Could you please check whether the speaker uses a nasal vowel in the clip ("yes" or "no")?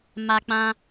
yes